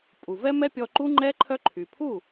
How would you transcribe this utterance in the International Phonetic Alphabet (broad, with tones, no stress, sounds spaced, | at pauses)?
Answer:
pʼ u˨ v ɛ˦ m ɛ˦ pʲ ɔ˧ ǃ u˦ ŋ͡ǃ ɛ˦ ǃʰ œ˦ ǃʰ y˨ pʰ u˦˨